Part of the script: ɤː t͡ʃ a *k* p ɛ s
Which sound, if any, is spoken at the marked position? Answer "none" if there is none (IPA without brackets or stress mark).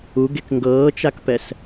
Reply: k